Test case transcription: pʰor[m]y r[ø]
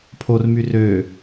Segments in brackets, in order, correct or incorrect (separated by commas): correct, correct